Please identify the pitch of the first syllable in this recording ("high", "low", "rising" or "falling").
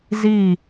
falling